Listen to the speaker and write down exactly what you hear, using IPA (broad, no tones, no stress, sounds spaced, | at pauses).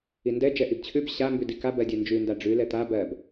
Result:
i n d ɛ d͡ʒ ɛ ʔ i b t͡ɕʰ ʉ b ɕ a m b ʉ d i k a b ɜ dʲ ɛ n d͡ʒ ʉ n d a ɖ͡ʐ ʉ l ɛ t̪ a b ɜ b